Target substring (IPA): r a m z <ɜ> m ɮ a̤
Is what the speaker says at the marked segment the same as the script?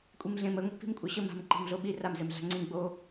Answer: no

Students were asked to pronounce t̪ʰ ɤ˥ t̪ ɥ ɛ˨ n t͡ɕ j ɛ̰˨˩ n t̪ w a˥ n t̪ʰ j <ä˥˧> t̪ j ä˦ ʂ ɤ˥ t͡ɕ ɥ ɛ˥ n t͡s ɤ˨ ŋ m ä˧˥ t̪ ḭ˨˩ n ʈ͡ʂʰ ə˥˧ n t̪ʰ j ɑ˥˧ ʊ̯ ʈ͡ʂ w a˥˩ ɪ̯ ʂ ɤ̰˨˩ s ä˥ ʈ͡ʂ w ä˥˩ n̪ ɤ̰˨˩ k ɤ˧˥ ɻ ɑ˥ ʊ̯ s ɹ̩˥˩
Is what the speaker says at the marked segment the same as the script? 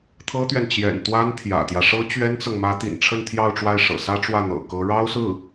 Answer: no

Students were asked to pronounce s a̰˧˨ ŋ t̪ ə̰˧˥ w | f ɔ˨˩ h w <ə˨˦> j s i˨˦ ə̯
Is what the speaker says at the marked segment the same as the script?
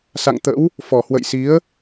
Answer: no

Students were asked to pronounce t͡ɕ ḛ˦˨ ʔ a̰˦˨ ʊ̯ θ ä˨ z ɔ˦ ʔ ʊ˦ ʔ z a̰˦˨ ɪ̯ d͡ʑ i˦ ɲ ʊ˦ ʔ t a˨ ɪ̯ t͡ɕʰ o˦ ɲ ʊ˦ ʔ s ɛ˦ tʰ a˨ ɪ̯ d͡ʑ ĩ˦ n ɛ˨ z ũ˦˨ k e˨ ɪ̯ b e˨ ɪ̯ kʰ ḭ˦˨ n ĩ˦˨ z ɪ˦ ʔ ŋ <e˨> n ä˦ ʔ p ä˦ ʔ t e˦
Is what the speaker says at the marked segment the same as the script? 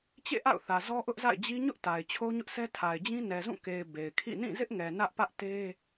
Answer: no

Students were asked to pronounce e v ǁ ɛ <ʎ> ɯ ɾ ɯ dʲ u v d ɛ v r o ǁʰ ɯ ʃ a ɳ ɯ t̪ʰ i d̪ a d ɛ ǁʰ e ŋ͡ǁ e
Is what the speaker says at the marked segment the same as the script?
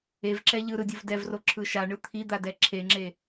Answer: yes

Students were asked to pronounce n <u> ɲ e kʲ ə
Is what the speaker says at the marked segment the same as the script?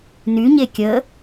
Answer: no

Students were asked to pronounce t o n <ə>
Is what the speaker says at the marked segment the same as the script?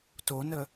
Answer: yes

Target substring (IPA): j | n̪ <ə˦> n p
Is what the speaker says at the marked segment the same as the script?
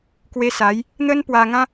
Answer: yes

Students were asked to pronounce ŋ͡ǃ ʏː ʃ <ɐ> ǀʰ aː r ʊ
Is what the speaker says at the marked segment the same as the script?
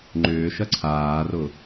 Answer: yes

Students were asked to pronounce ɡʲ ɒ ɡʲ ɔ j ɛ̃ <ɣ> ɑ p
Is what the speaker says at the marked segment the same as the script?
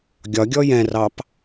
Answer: no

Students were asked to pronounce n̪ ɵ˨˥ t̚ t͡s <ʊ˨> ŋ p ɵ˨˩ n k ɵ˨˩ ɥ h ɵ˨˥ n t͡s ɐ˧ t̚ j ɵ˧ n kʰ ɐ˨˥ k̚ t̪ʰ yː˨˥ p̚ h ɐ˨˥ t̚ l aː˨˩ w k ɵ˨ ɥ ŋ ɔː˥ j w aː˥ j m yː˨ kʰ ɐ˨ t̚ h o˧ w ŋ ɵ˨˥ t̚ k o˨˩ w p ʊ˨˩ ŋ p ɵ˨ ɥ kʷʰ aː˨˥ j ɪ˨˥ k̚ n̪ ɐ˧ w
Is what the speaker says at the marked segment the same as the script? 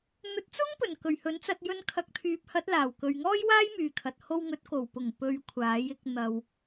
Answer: no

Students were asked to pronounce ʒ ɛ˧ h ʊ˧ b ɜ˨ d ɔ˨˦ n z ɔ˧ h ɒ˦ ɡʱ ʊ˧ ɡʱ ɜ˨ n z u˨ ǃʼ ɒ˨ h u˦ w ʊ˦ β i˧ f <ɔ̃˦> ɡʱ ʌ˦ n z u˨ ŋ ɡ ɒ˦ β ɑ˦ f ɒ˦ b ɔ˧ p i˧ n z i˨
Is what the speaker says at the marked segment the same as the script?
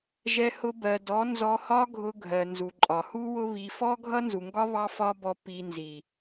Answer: no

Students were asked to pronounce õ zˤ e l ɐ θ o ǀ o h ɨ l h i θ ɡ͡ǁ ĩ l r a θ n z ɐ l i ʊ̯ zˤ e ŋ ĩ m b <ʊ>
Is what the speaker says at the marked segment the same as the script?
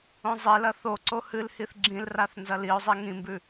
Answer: no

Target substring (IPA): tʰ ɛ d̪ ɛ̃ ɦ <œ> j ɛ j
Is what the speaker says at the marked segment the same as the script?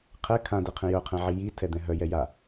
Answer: yes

